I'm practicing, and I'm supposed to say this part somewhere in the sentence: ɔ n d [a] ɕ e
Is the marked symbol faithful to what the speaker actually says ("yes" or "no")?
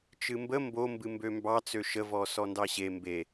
no